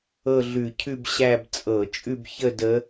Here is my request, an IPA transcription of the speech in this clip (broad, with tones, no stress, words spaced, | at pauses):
ɤ˥˧ɮʉ˧˩˧ cʰʉ˥˧bɕæ˥˧b t͡sʼɤ˧˩˧t͡ʃʼʉ˥˧bçə˥˧ də˧˥